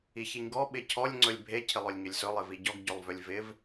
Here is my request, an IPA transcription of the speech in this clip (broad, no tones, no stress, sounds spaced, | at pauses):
i ç i ɲ ɡ ɔ ɓ ɪ cʰ ɔ lʲ ŋ͡ǀ ɵ lʲ bʱ e cʰ ɪ lˠ ɵ lʲ ɲ ʏ lʲ s ɵ lˠ ɪ v i ɟ ɔ ɡ ɟ o lˠ v ʏ lʲ v ɪ v